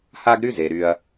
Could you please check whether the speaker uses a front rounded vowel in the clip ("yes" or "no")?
yes